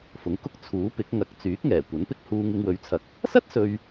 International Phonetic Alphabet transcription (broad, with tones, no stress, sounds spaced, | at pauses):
f ʊ˨˥ ŋ k ʊ˧ k̚ t͡sʰ uː˨˥ p ɪ˨˥ k̚ ŋ ɐ˨˥ k̚ t͡s yː˨˥ k̚ ŋ ɛː˨˩ kʷ ɐ˨˥ n p ɪ˥ k̚ h uː˧ ŋ ɪ˧ ŋ w ɵ˨˥ ɥ t͡sʰ ɐ˨ k̚ | s ɐ˥ t̚ s ɵ˧ ɥ